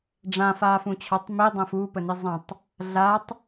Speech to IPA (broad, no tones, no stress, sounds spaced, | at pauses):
ɖ͡ʐ ã f aː f ũ t͡ɕʰ ɒ tˤ m i dˤ ə̃ː f u p ə n i zˤ ə̃ tˤ | ɮ a tˤ